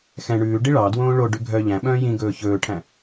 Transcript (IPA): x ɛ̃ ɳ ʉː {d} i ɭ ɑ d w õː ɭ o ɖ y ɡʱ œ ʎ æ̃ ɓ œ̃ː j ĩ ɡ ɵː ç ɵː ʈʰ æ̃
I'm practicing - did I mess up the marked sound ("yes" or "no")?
yes